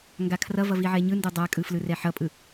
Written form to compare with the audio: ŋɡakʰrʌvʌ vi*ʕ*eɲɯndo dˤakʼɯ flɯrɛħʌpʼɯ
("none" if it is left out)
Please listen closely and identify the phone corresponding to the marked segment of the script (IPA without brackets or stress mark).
ʕ